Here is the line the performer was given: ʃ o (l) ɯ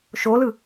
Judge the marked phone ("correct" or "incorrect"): correct